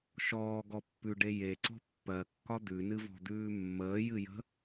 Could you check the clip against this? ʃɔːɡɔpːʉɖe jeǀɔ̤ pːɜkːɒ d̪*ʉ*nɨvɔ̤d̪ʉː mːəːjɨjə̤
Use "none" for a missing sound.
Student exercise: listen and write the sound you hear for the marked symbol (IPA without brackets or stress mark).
ʉ